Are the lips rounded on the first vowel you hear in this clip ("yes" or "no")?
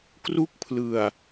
yes